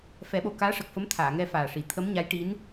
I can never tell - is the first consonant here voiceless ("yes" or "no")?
yes